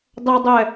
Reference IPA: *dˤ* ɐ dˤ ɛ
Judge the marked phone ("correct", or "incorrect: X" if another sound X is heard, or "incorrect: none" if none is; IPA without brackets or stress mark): correct